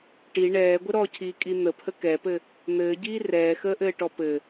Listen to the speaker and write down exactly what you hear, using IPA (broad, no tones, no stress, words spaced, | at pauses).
ʈi ɳɛːɡʷə ɾɔcʰiːkʼi n̪əpʰə kɛpɘ | n̪ɘːɟiː rɛːxəːʔɘːʈɔ pɘ